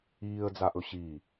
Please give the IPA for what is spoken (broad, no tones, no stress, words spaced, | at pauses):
iːə̯d͡zaʔɵ ɕi